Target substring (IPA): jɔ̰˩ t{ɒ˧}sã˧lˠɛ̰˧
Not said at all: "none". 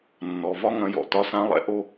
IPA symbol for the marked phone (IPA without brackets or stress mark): ɒ˧